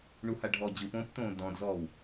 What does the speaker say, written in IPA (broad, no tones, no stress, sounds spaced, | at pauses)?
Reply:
ɳ u h a ɖʱ ɔ d͡ʑ ɯ p õː p t̪ õː d ɔ̃ d z ɔː w